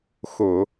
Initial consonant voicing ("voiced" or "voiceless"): voiceless